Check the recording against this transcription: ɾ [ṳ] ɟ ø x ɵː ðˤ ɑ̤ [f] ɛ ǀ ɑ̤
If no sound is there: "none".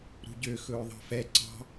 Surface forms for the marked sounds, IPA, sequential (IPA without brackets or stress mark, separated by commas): ṳ, f